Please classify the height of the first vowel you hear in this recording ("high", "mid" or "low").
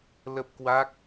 mid